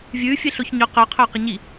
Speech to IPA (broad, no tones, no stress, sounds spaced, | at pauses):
vʲ ʉː fʲ e ɬ o ç ɲ ɵ q ɵ qʰ ɵː q ɐ ɲ i